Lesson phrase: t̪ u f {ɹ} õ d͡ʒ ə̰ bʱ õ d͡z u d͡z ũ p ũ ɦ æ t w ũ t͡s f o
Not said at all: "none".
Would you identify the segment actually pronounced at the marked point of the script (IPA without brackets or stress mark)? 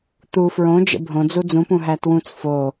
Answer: ɹ